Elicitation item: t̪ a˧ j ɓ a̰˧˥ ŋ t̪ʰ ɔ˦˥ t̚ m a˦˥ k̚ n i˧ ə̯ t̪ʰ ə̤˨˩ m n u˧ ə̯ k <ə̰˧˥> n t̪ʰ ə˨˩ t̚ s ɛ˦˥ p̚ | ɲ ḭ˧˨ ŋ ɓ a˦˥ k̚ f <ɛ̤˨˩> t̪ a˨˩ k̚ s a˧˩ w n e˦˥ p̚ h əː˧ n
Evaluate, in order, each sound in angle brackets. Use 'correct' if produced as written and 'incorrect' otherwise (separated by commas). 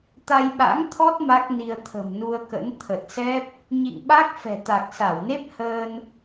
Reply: correct, correct